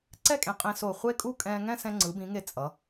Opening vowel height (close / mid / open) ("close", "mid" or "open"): mid